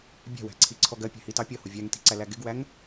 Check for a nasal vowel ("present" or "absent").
absent